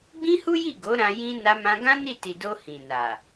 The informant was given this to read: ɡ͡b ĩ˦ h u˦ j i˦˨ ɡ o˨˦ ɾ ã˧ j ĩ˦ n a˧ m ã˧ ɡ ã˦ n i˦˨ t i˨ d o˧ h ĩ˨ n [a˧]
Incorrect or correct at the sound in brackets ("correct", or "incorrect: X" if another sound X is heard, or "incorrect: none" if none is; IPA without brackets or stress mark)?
incorrect: a˨